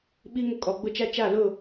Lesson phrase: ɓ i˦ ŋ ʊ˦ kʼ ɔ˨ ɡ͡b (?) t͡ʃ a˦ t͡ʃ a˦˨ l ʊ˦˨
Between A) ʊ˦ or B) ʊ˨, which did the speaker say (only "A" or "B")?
A